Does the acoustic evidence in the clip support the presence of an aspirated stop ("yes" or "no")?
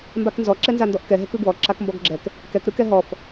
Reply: no